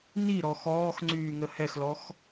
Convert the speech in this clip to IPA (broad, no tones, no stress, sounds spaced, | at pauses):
n i ɾ ɔ x ɔː x ŋ͡ǀ yː ŋ ə h ɛ x l ɔ x